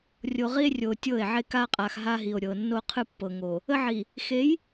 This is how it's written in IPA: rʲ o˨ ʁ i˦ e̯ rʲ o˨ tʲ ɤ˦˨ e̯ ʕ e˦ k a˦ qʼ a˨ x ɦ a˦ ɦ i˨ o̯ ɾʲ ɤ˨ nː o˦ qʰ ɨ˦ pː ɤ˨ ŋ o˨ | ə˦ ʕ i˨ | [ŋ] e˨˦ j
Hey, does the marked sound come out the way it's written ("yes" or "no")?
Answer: no